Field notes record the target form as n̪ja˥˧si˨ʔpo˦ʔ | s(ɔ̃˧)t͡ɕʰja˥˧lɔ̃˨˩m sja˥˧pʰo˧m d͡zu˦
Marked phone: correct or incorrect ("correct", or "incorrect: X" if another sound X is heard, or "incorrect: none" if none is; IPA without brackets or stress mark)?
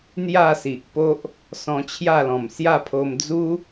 correct